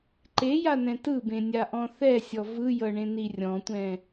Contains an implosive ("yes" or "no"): no